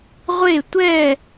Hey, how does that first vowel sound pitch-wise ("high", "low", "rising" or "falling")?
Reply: falling